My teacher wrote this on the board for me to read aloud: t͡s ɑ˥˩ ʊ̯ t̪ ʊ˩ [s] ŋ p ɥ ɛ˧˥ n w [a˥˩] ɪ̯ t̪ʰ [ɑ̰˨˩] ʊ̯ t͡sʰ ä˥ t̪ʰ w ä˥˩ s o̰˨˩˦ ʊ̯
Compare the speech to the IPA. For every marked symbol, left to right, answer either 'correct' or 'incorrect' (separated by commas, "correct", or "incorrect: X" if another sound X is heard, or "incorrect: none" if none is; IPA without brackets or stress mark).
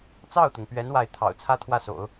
incorrect: none, correct, correct